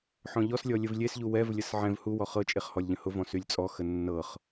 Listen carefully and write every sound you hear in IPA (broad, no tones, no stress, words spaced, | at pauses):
ħɔ̃ʎɔslʲɔ lʲəvlʲesʎu wɛvlʲəs ʕɛ̃v huwɔ χɤt͡ʃʼeχ hɔlʲʎə̃hʊvɔ̃ sylʲt͡sʼɔxə nːɤχ